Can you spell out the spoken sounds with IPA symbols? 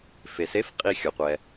f e˩ s e˧˥˧ f qʼ i˦˨ xʲ o˩ qʷ ɛ˩

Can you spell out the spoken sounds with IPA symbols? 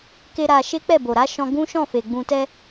k e˦ ɾ a˧ ʃ e˦ k͡p ɛ˦˨ b o˨ ɾ a˨˦ ʃ ɔ̃˧ ɡ ũ˦ ʃ ɔ̃˦˨ f e˨ ɡ͡b ũ˨ t ɛ˧

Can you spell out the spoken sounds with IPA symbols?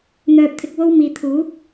n̪ œː˧ p̚ t̪ʰ ɪ˧ k̚ w o˥ w m iː˨ t̪ʰ uː˨˥ p̚

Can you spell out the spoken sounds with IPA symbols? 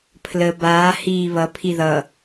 pʰ l ə b aː h iː β ʌ pʰ i ð ʌ

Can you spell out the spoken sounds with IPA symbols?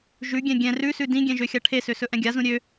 ʒ ʉ ɡʲ ɛ̃ ɡʲ ɛ̃ r ʉ s ʉ d ĩ ɡʲ ɛ̃ ʒ ø xʲ a ʈʰ e s ø s ɵ ʔ ɛ̃ ɡʲ a z ũ ɾʲ ø

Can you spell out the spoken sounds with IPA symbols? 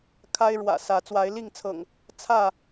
kʰ a˦ ɪ̯ ɻ w ä̰˨˩ s ä˨˦ t͡s w a˨˦ ɪ̯ l i˥˨ ŋ t͡sʰ ɤ̰˨˩ ŋ | t͡sʰ ä˥˨

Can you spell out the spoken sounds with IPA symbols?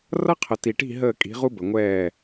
r ʌ˥ qʰ ə˨ t i˨ ʈ i̤˥˨ ɦ əː˥˨ kʼ i̤˨˥ ʁ u˥ b ə˨ ŋʷ ɛː˥˨

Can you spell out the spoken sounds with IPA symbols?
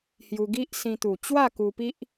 h j u˧ ɡ i˦ ʔ s ĩ˧ t̪ u˨˩ t͡ɕ w a˥˧ k u˧ p i˦ ʔ

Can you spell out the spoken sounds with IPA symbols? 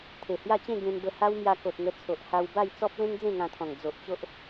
t̪ʰ e˨˩ h j a˥˧ t͡ɕ ẽ˥˧ ɡ ẽ˧ n b ə˧ h a˦ w m j a˧ k o˨ t̚ ŋ ə˧ t͡sʰ o˨ ʔ h a˧ w b a˥˧ j t͡s ɔ˦ p̚ l ẽ˦ ŋ d͡z ẽ˥˧ ŋ ã˧ t̪ʰ ɔ̃˨˩ ŋ d͡z o˨ ʔ t͡ɕ o˦ ʔ

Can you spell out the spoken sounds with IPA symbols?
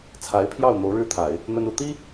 t͡sʰ a˧˥ ɪ̯ pʰ j ɑ˥˩ ʊ̯ n̪ o˧˥ ʊ̯ ɻ ɻ̩˥ t̪ʰ a˨˩˦ ɪ̯ | n̪ ə˥ n u˥˩ t̪ i˥

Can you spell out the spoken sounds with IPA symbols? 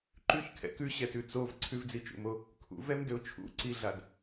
ǃ ʉ ç kʰ ɛ̰ k ʉ ɕ ɛ t ʉ t͡s o v ǀʰ ʉ v d͡z i t͡ʃ ṵ m o | kʰ ṵ v ɛ m d ø ʊ̯ t͡ʃʰ ṵ ǀ i ɮ a d

